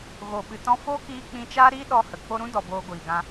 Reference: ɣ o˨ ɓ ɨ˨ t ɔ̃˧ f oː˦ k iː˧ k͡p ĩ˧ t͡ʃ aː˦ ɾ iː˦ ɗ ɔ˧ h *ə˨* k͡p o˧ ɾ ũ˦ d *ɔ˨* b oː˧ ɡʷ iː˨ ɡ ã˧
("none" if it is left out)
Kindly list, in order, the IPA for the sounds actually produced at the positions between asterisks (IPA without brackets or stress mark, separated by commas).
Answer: ə˨, ɔ˨